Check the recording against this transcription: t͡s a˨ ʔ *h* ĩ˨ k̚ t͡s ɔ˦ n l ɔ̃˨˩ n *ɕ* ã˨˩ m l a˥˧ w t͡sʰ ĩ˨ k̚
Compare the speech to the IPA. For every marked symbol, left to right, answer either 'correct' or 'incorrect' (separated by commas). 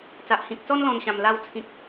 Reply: correct, correct